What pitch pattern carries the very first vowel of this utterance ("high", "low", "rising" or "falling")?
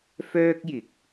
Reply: high